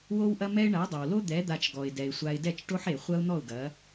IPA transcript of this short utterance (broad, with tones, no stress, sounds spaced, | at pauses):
w o˦ w ʔ ɐ˦ m ɛ˦ ɪ̯ ɳ a˨˦ dˤ ɐ˨ w l o˦ d̪ ɛ˨˦ d̪ a˧ t͡ʃ ɡ ɔ˨ ɪ̯ d ɛ˨ ɪ̯ sʷ a˧ ɪ̯ d ɛ˦˨ t͡ʃ ʈ o˦ ħ e˨ χʷ ɐ˦ ʊ̯ n̪ ɔ˦˨ ʊ̯ ɡ ɐ˨˦